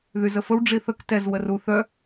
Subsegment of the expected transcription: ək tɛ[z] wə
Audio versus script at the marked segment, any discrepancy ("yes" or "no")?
no